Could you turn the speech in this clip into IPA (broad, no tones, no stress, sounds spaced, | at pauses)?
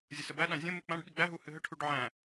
zʲ ə s ə b æ ɗ ã zʲ ə̃ m ɨ k͡p ã ɖ ɓ i ɡ͡b æ ɦ u h ɨ ɦ ə ʈʰ u ɖ ʕ æ̃